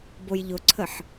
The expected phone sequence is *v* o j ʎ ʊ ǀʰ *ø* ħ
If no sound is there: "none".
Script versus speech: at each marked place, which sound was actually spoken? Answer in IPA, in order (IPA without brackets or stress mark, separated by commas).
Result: b, ə